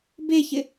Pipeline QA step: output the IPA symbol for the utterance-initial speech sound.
b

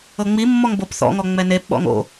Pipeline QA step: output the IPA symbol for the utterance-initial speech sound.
ɤ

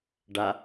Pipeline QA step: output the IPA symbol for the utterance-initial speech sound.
ɖ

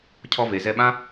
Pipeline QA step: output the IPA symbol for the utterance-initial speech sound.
cʰ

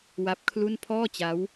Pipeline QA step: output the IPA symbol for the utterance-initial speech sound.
w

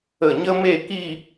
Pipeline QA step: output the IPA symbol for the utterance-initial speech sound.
ə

